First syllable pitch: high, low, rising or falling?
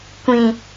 low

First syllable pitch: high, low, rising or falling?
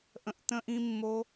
low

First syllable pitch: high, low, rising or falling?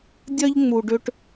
high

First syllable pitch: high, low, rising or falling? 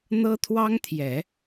high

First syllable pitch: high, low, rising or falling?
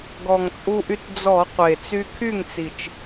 low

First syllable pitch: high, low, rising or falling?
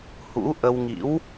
rising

